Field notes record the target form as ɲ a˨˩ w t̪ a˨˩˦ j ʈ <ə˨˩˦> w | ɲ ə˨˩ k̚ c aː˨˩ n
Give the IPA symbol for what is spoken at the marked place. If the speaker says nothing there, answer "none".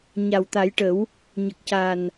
ə˨˩˦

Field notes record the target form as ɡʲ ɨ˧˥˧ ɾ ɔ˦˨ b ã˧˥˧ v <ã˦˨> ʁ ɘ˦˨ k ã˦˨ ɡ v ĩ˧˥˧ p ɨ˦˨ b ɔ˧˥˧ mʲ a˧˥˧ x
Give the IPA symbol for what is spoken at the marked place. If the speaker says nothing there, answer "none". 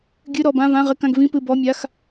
ã˧˥˧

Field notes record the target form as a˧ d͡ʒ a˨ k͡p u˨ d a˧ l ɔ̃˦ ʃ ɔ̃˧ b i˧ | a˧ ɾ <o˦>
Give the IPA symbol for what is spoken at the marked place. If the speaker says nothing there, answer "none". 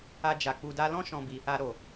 o˨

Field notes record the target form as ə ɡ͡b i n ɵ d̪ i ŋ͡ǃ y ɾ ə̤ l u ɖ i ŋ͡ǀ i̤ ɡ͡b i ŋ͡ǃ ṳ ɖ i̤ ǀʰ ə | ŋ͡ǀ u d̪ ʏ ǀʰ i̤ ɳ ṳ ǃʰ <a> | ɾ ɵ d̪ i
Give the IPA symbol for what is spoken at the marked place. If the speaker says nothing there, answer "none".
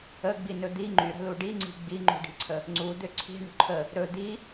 ə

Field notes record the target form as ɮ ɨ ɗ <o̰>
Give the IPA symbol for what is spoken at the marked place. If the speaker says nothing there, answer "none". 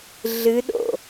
o̰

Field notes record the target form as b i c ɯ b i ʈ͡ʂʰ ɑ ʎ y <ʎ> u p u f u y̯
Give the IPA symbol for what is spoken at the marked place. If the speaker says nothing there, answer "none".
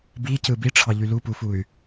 l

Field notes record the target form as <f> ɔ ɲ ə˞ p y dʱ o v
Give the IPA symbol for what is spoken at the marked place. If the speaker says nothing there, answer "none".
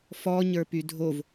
f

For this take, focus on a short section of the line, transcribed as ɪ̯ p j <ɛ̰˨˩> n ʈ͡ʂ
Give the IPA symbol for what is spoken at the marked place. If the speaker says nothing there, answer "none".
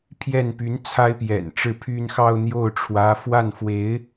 ɛ̰˨˩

